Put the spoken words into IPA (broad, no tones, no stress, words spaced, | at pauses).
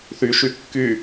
θyʃy kːy